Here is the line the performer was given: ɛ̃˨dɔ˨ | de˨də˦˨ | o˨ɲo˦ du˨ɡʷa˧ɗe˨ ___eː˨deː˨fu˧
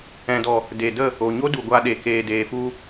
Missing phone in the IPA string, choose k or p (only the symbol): k